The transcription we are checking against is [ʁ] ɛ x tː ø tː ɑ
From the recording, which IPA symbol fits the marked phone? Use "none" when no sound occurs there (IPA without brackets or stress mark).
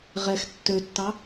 ʁ